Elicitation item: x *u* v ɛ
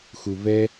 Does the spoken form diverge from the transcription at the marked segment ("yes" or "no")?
no